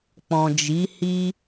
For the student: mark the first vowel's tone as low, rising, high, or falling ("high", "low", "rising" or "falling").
low